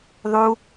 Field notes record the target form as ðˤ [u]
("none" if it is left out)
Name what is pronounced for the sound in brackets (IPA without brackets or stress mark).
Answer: u